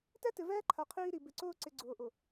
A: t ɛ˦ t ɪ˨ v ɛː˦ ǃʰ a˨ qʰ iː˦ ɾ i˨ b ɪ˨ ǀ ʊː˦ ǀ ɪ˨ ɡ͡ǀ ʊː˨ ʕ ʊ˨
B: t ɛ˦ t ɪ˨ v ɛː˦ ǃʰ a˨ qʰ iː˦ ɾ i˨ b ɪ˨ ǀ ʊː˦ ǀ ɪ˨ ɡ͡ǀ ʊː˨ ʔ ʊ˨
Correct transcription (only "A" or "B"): B